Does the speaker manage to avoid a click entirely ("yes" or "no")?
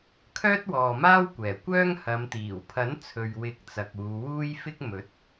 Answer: yes